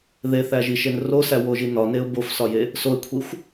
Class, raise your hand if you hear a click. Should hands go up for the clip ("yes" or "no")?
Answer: no